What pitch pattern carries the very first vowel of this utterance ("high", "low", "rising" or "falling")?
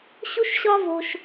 high